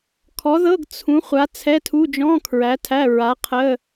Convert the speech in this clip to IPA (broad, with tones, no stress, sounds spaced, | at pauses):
kʰ ɔ˨˥ ð ɤ˧˥˧ ɡ t͡sʰ ũ˨˥ χʷ a˨˥ t͡sʰ ɛ˧˥˧ tʰ u˧˥˧ d͡ʒ ɔ̃˧˥˧ kʰ ɹ æ˨˥ tʰ æ˧˥˧ ɹ a˨˥ qʰ ə˧˥˧